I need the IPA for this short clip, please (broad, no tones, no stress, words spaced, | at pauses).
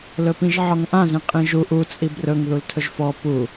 lɵpĩʒʕɔŋʔãz ĩqʼĩʒu ʔu t͡sʼibrɵŋ ðultʰɵʒfɔ pu